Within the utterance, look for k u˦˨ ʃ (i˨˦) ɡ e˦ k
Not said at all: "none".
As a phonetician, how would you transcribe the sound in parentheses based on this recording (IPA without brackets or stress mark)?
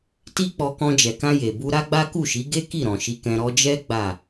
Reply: i˨˦